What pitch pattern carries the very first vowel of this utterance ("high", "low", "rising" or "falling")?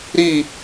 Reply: falling